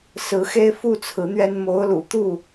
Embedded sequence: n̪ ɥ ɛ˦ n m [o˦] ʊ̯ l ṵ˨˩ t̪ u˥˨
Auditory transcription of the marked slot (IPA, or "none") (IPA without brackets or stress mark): o˨˦